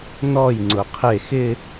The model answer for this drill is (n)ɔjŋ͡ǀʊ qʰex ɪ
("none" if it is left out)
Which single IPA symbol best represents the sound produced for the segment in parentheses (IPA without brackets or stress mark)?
n